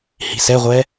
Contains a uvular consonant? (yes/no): yes